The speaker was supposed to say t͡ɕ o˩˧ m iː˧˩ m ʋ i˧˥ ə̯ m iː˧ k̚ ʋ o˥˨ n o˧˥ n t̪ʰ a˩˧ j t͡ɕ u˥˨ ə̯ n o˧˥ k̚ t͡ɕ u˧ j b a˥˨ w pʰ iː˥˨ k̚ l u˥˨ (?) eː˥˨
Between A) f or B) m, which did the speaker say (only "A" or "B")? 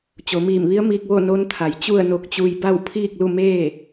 B